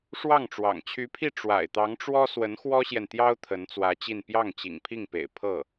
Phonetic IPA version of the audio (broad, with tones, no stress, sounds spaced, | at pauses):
ʂ w ɑ˥˩ ŋ ʈ͡ʂ w ɑ̰˨˩ ŋ t͡ɕʰ y˧˥ pʰ i˥˩ ʈ͡ʂ w a̰˨˩ ɪ̯ t̪ ɑ˧˥ ŋ ʈ͡ʂ w ɔ˥ s w ə˧˥ n x w ɔ˥ ɕ j ɛ˨ n t̪ j ɑ˥ ʊ̯ t̪ʰ ə˧˥ n t͡s w ä˧˥ t͡ɕ i˥˧ n p j ɑ˥˩ ŋ t͡ɕ ḭ˨˩ ŋ pʰ i˥˩ ŋ p ḛ˨˩ ɪ̯ pʰ ɤ˥˩